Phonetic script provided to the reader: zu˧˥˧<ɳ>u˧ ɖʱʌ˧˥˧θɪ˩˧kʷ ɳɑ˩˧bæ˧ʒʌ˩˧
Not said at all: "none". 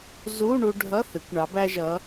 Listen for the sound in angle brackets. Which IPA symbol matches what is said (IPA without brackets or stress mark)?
ɳ